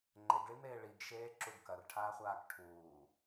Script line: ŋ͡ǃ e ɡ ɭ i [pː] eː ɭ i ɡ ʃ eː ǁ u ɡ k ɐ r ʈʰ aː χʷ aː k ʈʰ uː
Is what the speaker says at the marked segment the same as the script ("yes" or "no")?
no